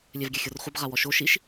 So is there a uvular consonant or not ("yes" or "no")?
yes